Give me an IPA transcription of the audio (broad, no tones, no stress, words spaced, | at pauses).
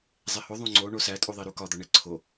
zˤeho ðˤõŋ͡ǀo ɳosætʼuðˤi ɾukɒd̪ɒ ɳeǀʰo